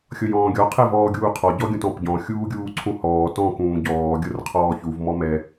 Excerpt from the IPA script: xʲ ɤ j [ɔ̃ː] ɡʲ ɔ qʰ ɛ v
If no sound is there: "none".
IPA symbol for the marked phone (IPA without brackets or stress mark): ɔ̃ː